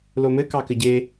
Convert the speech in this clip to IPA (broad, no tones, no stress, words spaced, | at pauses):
lomɘ kɑkɘɟe